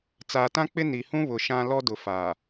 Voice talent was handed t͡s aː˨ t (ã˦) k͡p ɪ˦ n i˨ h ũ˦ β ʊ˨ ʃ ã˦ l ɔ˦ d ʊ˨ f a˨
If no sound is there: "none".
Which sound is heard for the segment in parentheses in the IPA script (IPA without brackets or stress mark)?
ã˦